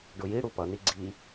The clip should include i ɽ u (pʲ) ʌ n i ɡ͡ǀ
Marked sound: incorrect: p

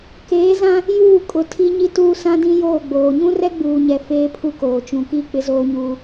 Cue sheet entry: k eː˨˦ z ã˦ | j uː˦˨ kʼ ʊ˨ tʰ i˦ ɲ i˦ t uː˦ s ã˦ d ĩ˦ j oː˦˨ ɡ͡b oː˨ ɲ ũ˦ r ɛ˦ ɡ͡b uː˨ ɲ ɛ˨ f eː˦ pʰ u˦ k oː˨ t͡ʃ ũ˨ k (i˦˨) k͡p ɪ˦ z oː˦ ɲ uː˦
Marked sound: correct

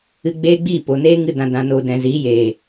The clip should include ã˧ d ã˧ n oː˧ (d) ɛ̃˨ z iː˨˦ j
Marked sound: correct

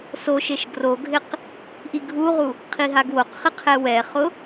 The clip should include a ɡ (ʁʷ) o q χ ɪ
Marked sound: incorrect: w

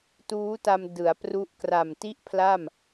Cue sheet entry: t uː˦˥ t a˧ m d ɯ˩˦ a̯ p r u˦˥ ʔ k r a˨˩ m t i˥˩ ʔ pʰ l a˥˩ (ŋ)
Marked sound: incorrect: m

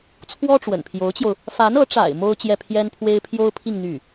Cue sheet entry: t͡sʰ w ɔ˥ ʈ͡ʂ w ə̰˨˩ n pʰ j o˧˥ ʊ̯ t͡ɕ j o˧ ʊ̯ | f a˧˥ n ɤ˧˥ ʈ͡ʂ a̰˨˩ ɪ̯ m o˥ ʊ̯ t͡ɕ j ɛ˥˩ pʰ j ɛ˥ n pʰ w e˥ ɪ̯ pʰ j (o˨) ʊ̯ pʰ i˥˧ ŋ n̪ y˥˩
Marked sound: incorrect: o˥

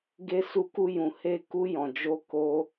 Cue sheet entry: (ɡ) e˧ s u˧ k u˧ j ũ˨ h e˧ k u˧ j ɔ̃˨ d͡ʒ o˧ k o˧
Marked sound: correct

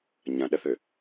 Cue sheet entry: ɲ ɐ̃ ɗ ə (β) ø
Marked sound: incorrect: θ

